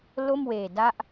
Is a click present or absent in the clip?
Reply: absent